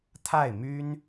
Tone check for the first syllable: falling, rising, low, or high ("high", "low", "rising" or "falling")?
falling